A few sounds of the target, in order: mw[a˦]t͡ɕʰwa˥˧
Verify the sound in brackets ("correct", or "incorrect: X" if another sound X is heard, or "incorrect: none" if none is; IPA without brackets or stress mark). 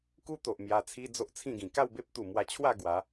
incorrect: a˧